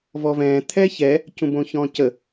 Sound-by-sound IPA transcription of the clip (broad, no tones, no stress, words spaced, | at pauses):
vɔvɛ̃ː t̪ʰɛçɛ | cũbõçɔ̃cə